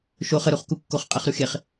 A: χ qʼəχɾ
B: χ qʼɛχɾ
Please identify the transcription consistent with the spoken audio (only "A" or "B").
B